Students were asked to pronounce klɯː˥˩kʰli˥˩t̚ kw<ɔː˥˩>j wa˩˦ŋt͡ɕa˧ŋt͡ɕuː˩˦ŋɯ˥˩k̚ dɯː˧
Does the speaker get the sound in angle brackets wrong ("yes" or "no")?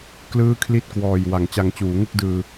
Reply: yes